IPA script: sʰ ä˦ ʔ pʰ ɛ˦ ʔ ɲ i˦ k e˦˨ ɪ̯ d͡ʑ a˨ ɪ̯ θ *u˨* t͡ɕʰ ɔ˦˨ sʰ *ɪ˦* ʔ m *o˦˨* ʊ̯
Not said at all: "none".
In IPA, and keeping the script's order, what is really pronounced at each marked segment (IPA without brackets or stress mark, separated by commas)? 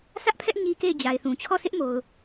ũ˨, ɪ˦, o˨